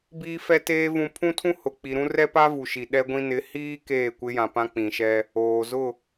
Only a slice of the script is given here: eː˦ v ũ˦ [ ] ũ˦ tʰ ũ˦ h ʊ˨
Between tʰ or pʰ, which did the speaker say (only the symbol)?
pʰ